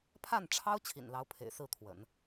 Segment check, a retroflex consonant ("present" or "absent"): present